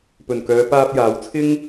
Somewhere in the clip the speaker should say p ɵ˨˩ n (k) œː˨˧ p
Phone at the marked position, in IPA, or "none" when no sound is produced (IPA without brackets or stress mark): k